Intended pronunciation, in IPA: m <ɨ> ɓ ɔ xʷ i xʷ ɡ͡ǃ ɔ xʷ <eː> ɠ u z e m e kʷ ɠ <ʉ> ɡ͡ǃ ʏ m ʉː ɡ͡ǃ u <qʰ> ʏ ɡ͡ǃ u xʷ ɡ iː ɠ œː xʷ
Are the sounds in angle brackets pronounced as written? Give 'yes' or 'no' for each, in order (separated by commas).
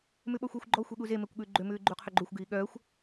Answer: no, no, no, yes